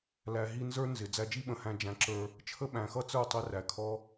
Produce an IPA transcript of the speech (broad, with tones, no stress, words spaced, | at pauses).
læ˨ɦi˧ nzə˞˦nzɪ˨ d͡zæ˧d͡ʒi˦ɓə̃˨hæ̃˧ d͡ʒæ̃˨˦ǁə˞˧ | t͡ʃʰə˦ɓæ̃˨xʌ˦t͡sə˞˦˨ tˤɪ˧ ræ˨kʰɔ˦